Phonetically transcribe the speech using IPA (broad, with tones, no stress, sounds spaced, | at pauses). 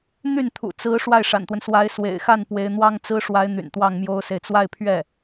n̪ y˥˩ n t̪ʰ ṵ˨˩ t͡s ɹ̩˧˥ ʂ w a˥˩ ɪ̯ ʂ a̰˨˩ n t̪ w ə˦ n s w a˧˥ ɪ̯ s w ḛ˨˩ ɪ̯ x a˥˩ n p w e˧˥ ɪ̯ n̪ w ɑ˥ ŋ t͡s ɹ̩˥ ʂ w a˧˥ ɪ̯ n̪ y̰˨˩ n t̪ w ɑ˥˩ ŋ m j o˥ ʊ̯ s e˨ ɪ̯ t͡s w a˥˧ ɪ̯ pʰ ɥ ɛ˥˩